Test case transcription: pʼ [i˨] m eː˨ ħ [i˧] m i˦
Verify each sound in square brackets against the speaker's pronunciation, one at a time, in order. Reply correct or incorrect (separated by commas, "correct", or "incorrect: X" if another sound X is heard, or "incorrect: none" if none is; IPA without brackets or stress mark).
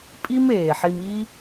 incorrect: i˦, correct